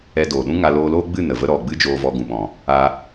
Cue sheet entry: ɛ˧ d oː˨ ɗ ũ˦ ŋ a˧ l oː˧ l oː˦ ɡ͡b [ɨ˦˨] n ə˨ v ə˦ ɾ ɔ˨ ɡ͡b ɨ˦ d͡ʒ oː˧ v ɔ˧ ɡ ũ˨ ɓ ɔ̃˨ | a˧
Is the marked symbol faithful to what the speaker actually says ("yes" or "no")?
yes